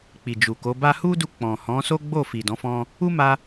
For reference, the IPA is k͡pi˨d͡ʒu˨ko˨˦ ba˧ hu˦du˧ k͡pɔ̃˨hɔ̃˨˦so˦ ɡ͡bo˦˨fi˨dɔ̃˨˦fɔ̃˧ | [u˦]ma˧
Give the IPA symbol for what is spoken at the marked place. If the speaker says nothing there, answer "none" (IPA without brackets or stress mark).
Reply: u˦